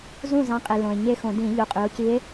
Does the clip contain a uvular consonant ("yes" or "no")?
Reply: yes